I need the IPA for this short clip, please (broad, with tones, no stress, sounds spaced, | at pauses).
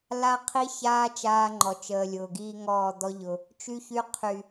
l a˦ qʰ i˦ ç aː˦ t͡ʃ aː˦ ŋ͡ǃ ɔ˨ t͡ʃ əː˨ lʲ ʊː˨ ɡ iː˦ ŋ ɔː˦˨ d̪ ɔ˦ ʎ ʊ˨ | t͡ʃ y˦ ç y˦ qʰ y˨